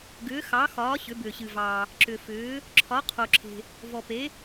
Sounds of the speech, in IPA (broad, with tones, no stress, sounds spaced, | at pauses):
ɡ ʏː˧˥ x ɑ˧˥ x ɒː˧˥ ɕ ʏ˧˥ b ʏː˧ ɕ ɨ˧ v ɑː˧ | ǁ ʏ˧ f ʏː˧˥ | ǁʰ ɒ˧˥ qʰ o˧ ǁʰ e̤˧ | v ɔ˧ p e˧˥